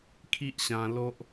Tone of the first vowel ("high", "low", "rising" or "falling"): high